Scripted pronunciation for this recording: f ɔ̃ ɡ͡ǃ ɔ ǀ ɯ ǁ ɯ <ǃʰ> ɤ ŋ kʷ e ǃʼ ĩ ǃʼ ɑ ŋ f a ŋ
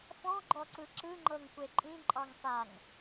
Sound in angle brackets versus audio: incorrect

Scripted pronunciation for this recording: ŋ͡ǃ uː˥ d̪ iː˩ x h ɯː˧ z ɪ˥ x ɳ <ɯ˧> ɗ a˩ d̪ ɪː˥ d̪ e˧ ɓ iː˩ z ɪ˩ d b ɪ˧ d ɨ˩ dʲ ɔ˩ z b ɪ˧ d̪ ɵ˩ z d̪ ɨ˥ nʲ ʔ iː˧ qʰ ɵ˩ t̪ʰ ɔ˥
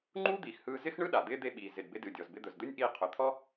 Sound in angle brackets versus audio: incorrect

